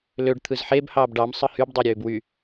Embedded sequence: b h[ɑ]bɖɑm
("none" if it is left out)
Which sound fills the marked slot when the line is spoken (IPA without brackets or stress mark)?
ɑː